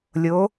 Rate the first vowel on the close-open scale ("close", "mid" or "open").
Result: mid